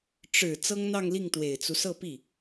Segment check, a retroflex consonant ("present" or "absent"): present